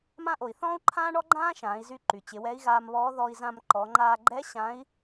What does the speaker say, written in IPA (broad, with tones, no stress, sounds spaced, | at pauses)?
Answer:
m ã˧ ʔ o˩ i̯ θ ɔ̃ː˥ u̯ ǃʰ ãː˥ ɳ ɔ˥ ɡ͡ǃ ãː˥ ʃ ãː˩˧ i̯ z y˧ ǃ y˩ t͡ɕ ɪ˩˧ w ɛ˧˥ i̯ ɣ aː˧ m β ɔː˧˥ ð ɔ˧ i̯ z ã˧ m ǃ ɔ˩˧ ŋ͡ǃ aː˧ ɡ͡ǃ ɛ˧˥ ɕ ã˧˥ i̯